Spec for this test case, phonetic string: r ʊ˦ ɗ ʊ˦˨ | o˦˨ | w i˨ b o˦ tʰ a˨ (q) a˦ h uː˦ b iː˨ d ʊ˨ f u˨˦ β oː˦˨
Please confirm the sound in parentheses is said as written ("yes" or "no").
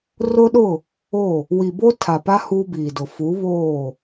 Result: no